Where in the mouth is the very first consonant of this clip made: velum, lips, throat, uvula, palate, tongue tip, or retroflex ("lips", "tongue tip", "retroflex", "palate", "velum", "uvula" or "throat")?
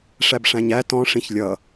retroflex